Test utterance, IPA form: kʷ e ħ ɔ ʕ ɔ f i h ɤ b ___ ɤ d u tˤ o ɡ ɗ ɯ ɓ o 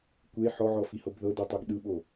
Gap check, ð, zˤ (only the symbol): ð